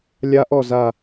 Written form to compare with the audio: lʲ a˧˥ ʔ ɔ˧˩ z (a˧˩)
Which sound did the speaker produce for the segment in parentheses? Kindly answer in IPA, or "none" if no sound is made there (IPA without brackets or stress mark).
a˧˩